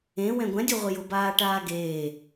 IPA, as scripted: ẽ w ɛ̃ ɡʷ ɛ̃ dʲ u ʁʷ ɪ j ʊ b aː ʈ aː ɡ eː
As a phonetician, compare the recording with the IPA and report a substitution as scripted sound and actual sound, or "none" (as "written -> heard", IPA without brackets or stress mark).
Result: none